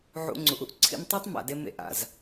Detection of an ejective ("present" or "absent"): absent